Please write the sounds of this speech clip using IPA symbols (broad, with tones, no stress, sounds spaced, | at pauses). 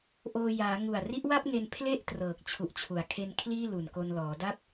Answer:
ʔ oː˧ j aː˩˦ ŋ u˨˩ a̯ r i˦˥ ʔ w a˥˩ p̚ ŋ e˧ n pʰ l e˥˩ ʔ t r ɤː˨˩ k̚ t͡ɕʰ u˨˩ ʔ t͡ɕʰ u˩˦ a̯ kʰ e˧ n kʰ l iː˥˩ l u˨˩ n k o˧ n l ɔː˩˦ d a˥˩ p̚